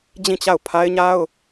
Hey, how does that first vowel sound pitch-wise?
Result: falling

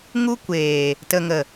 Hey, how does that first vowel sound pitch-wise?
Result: high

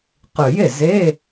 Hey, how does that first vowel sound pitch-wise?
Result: low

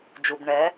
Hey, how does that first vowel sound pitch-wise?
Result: low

